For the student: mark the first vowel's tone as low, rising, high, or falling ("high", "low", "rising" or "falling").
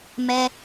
high